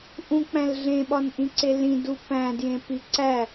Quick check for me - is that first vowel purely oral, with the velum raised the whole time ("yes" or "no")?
no